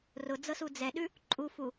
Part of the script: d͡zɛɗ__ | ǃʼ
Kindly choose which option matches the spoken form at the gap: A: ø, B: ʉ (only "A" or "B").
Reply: B